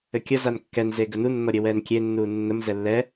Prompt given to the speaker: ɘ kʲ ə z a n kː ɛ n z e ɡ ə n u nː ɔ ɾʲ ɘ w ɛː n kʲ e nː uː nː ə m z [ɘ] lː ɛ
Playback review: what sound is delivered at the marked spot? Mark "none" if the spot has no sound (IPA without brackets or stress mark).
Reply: ɛ